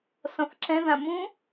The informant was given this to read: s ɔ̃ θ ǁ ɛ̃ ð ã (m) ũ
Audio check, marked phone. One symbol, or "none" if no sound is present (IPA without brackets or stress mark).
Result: m